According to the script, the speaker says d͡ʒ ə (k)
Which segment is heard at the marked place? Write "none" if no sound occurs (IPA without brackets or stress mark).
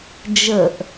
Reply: ʔ